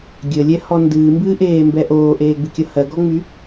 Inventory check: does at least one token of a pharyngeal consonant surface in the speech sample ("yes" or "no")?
no